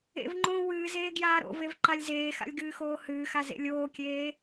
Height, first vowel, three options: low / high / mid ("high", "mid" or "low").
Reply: mid